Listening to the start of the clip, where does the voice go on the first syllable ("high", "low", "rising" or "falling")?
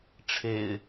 low